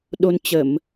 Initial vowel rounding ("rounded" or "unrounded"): rounded